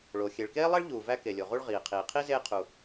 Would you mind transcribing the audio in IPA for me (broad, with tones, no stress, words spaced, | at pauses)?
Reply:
ɭo˩ xʲe˩ɭkeː˥lˠe˥ɭ ʎuː˩væ˦ ke˩lʲo˩ʁu˦ɭ ʁiː˩qʰiː˩ qʰi˥zeː˦ qʰu˨